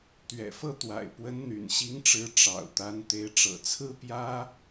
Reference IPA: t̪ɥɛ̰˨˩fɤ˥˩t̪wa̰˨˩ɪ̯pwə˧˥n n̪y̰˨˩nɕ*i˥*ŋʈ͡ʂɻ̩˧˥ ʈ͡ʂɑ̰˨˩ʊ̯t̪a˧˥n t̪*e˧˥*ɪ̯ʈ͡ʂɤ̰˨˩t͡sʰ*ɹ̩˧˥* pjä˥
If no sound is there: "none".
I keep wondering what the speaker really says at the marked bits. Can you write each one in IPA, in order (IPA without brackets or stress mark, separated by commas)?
i˧˥, e˧˥, ɹ̩˥